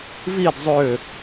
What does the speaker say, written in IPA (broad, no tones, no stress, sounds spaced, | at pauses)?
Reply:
v i d zˤ ø